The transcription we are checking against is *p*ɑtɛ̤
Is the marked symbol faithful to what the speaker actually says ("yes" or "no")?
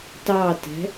no